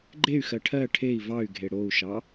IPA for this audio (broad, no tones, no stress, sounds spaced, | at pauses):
ɡ͡ǃ e y̯ x ɜ ʈʰ ɜ ʈʰ e i̯ v ɑ y̯ ɡʱ e ɽ o u̯ ʃ ɑ